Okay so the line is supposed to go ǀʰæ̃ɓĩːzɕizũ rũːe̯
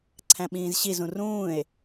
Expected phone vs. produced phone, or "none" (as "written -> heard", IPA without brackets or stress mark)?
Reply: none